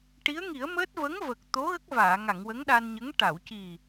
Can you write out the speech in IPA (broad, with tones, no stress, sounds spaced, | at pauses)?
ʈ i˧˥ ə̯ ŋ i˨˩˦ ə̯ m əː˦˥ t̚ v ə˧˥ ŋ v ə˨˩ k̚ t̪ o˧˥ ɣ ə˦˥ k̚ v aː˨˩˨ ŋ a˨˩˨ ŋ w ə˧˥ ŋ ɗ a˧ n ɲ ə˧˥ ŋ ʈ a˨˩˨ w c i˨˩